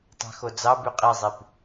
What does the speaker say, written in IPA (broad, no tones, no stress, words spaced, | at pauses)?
tˤɑ̤xod͡zɑby qʼizˤip